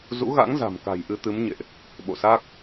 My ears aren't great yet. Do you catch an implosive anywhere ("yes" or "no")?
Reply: yes